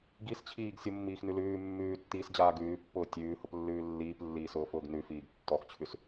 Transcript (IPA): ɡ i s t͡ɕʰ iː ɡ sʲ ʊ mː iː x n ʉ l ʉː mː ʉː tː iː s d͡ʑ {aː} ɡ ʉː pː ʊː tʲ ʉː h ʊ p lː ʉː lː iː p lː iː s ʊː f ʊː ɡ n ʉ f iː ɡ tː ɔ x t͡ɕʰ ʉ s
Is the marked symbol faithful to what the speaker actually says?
yes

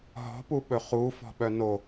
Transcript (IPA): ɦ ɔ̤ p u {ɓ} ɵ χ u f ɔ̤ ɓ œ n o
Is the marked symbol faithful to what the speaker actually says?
yes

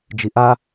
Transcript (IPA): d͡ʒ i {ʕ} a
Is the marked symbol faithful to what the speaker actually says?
no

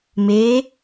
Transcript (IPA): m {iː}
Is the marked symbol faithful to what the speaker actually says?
no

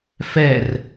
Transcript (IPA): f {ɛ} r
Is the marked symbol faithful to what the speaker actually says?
yes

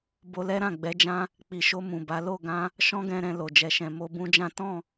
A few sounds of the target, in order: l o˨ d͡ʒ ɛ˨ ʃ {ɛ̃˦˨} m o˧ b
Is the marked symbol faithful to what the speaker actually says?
no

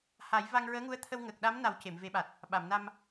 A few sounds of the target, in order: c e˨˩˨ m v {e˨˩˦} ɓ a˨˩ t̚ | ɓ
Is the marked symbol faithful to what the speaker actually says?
yes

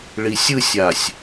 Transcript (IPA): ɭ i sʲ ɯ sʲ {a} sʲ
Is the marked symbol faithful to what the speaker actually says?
yes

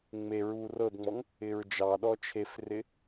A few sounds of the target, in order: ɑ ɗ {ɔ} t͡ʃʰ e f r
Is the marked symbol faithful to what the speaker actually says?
yes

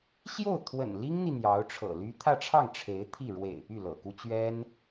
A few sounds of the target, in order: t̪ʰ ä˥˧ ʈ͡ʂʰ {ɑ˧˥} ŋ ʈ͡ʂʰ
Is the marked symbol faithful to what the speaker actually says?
no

